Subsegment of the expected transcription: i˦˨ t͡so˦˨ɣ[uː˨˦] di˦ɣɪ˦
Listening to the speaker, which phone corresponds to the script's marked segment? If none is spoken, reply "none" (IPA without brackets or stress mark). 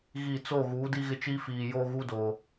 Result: uː˨˦